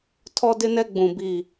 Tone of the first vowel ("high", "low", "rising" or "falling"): high